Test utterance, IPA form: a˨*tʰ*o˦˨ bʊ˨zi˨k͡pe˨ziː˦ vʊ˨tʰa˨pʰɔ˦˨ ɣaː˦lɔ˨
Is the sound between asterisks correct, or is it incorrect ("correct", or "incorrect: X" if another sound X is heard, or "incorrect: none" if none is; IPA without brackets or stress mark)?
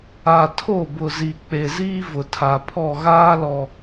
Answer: correct